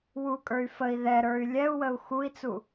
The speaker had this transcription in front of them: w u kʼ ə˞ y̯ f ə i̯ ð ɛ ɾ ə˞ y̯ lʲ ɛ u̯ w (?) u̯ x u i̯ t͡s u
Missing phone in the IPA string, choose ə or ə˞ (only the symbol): ə